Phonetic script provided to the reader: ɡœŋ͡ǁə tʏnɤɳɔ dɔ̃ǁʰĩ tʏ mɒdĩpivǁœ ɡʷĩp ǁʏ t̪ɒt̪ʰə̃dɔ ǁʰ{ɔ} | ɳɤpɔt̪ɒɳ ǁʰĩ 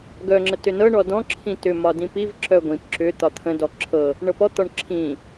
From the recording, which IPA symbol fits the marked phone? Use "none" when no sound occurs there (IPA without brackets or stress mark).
ɤ